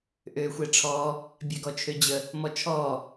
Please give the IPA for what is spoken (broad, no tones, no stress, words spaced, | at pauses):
ʔøːxʷɛʈ͡ʂʰɔː | bʲɛɡɔt͡ʃʰød͡ʑə | mɔt͡ʃʰɔː